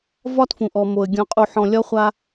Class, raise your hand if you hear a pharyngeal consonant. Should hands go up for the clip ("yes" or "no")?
yes